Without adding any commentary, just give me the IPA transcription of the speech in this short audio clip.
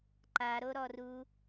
ǃ a ɾ o ɾ ɔ r u

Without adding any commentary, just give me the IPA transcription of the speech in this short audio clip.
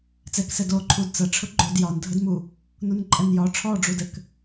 t͡s ɛ k s ɛ d o ǃʰ u d t͡s ɐ ʈ͡ʂʰ ʊ ɡ͡ǃ o d j ɒ n dʱ ə d m u | n u n ǃʼ ɛ n j ɒ ʈ͡ʂʰ ɔ ɖ͡ʐ u d ɘ k

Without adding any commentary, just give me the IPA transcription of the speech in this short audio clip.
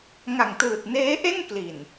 ŋ a˨˩ ŋ t ɯː˨˩ t̚ n eː˦˥ ʔ e˥˩ n k l i˨˩ n

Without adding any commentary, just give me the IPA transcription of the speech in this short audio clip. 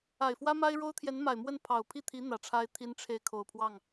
a˨˩ ɪ̯ f w ä˥ m a˥ ɪ̯ ɻ o˥ ʊ̯ t̪ʰ j ɛ˧˥ n m a˨˩ ɪ̯ m w ə˥˩ n pʰ ɑ˨˩ ʊ̯ pʰ i˥˩ t̪ʰ i˧˥ n̪ ä˨˩ ʈ͡ʂʰ a˥ ɪ̯ t̪ʰ i˥ n ʈ͡ʂʰ e˥˩ ɪ̯ kʰ o˨˩ ʊ̯ pʰ w ɑ˥˩ ŋ

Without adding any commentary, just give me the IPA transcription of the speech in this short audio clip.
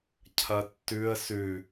cʰ ɐ tː ʉ ə̯ s ʉ

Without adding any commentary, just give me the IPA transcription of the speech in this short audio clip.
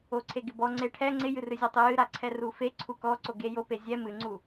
o ǀʰ e ɡ ɪ b ɔ ŋ͡ǀ e ʈʰ ɛ ŋ͡ǀ ɪ j ɨ r ɨ zʲ ɔ tˤ ɨ j ɨ ɾ a ǀʰ ɛ r u f e ǀʰ u k ɔ ǀ o ɡ e j o p e zʲ ɛ m ɨ ŋ͡ǀ u

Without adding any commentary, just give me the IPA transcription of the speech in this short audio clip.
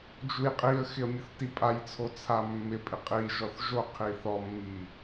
d͡ʒ u j qʼ i ə̯ x ɪ ə̯ mʲ ʊ θ t i pʼ a j t͡sʰ o t͡sʰ a mː ɪ pʼ ɪ qʼ i ʒ ɔ θ ʒ o qʰ i θ ɔ mː i

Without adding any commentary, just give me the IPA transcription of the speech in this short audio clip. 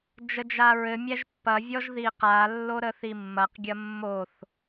d͡ʒ ə d͡ʒ a ɹ ɘ mʲ æ ʒ pː ɐ vʲ ɔ ʒ ð i q a lː o ɾ ə θ i mː ɐ q ɡʲ ɐ mː o θ

